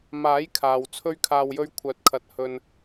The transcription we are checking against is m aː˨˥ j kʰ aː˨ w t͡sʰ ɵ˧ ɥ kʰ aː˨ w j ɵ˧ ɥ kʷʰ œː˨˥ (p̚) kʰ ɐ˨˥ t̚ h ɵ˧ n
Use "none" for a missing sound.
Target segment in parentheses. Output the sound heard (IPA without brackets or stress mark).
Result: t̚